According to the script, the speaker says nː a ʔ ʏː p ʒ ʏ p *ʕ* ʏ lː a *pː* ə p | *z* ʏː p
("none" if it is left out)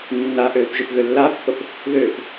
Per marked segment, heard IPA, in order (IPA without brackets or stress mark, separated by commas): ɣ, pː, ð